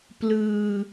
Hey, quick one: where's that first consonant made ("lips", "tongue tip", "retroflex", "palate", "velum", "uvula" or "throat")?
lips